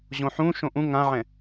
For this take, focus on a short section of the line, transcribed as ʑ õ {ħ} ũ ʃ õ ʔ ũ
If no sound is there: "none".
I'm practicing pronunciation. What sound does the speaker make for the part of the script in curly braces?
ħ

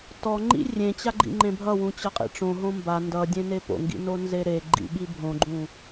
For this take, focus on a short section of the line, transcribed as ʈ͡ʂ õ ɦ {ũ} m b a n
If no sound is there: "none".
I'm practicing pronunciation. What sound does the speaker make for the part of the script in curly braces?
õ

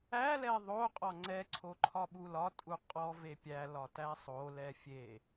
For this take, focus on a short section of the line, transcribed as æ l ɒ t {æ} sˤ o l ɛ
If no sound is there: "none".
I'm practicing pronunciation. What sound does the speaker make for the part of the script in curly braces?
æ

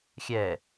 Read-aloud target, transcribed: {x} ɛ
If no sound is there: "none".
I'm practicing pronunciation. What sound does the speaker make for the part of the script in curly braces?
xʲ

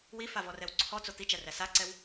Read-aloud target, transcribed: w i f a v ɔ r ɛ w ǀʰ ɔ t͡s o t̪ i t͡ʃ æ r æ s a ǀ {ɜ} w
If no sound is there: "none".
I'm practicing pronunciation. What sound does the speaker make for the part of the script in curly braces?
ɛ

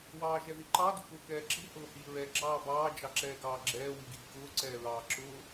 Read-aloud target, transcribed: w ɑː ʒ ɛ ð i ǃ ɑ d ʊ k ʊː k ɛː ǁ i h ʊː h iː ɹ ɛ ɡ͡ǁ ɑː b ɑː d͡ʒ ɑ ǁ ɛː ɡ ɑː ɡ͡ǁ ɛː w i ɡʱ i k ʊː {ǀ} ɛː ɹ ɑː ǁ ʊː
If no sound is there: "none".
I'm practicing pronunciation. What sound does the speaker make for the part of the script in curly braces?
ǀ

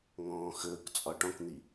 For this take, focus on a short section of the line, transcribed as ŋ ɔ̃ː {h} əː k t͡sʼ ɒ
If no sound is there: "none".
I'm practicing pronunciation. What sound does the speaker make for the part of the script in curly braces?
x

